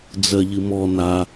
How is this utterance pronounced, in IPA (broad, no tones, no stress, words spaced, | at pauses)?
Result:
d͡zɜʎɨmɔ na